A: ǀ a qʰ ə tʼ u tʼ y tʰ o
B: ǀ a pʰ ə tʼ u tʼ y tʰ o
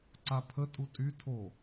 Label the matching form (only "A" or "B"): B